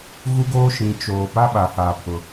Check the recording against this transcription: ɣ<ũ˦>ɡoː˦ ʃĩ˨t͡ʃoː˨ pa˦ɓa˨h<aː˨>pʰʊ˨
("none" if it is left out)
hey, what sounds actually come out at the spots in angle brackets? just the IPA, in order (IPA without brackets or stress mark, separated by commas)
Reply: u˦, aː˨